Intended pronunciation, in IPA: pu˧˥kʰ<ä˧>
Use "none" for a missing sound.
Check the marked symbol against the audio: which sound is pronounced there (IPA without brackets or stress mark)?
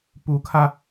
ä˧